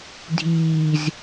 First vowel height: high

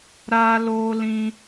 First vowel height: low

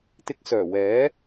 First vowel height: high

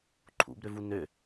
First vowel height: high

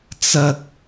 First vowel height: low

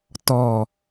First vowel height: mid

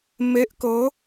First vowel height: mid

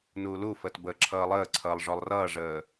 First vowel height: high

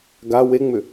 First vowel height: low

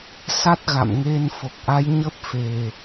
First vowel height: low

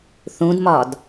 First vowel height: high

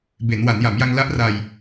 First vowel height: mid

